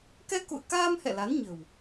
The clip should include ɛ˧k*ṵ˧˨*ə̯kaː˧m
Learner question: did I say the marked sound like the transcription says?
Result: yes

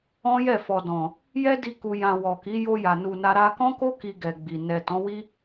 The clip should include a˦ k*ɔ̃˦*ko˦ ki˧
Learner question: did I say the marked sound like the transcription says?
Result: yes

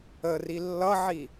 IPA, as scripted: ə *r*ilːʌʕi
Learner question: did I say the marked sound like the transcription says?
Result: yes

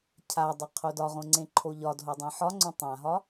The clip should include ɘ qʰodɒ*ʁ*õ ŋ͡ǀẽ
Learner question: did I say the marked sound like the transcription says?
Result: yes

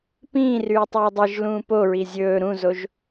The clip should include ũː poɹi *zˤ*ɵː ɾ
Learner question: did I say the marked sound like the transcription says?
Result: no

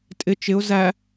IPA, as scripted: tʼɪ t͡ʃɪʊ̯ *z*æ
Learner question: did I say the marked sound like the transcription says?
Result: yes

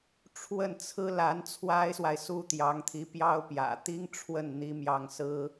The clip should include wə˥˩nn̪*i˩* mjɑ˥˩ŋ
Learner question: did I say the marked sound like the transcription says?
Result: no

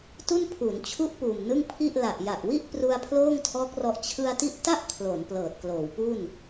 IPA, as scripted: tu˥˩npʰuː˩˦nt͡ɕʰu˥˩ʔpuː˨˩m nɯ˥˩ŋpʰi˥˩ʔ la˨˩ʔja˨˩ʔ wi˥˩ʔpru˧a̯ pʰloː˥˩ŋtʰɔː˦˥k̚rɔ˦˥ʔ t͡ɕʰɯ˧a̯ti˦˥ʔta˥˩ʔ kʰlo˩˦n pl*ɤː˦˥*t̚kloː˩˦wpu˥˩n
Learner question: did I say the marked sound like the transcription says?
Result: no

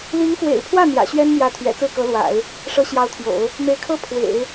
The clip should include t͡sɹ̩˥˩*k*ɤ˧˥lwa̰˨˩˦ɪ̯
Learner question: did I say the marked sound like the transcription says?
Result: yes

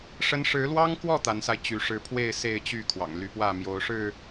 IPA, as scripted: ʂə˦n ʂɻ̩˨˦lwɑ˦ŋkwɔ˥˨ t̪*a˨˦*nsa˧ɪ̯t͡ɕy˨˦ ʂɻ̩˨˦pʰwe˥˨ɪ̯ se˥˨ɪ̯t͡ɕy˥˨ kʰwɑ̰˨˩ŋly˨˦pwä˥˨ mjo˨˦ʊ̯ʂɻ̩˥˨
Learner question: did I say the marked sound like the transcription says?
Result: yes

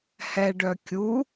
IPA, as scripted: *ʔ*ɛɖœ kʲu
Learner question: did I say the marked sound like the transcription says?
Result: no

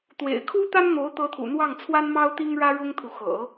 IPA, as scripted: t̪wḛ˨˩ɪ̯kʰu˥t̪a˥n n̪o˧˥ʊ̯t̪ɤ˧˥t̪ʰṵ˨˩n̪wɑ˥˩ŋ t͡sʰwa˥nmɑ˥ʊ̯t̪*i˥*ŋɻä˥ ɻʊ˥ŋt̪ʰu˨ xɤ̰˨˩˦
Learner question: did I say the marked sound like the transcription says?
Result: yes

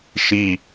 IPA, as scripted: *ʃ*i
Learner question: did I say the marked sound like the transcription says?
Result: yes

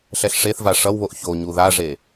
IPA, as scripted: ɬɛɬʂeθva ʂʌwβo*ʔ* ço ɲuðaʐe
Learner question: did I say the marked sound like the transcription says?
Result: yes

